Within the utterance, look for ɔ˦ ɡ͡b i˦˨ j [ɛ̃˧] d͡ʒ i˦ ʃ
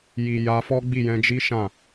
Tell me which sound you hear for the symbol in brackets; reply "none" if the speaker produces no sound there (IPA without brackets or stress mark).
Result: ɛ̃˧